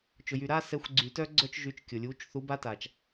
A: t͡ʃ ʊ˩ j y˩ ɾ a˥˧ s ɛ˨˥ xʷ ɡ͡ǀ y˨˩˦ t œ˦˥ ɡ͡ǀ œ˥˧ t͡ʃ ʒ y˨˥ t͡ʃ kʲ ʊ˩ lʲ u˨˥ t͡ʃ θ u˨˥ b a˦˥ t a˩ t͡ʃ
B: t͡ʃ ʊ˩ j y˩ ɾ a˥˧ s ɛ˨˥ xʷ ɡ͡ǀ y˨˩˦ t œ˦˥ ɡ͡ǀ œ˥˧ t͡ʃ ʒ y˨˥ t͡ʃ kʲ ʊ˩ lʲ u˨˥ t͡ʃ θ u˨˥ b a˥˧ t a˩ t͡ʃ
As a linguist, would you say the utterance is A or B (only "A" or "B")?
A